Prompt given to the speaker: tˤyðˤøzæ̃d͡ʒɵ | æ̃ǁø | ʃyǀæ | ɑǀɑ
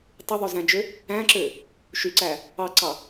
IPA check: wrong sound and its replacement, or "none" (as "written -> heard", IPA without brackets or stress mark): ɵ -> ø